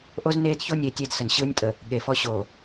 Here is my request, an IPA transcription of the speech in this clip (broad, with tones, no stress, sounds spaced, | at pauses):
ʔ o˦ z n eː˦ d ç o˦ nʲ e˨˦ tʲ e˦ d s ə˨ n ɕ ɯː˦ nʲ tʼ ə˨ | ɠ e˨ f ɔ˦ ɕ oː˨